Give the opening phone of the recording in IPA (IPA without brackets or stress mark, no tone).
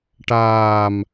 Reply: ʈ